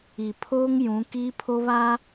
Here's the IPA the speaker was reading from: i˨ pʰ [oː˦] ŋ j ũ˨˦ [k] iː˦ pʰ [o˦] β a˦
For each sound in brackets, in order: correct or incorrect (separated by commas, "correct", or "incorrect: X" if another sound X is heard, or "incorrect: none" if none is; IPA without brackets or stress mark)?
correct, correct, correct